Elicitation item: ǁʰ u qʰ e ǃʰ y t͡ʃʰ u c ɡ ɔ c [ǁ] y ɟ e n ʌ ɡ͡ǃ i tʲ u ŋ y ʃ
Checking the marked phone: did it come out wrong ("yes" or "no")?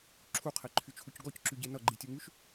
no